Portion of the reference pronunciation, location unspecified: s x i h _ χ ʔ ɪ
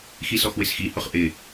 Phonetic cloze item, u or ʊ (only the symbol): ʊ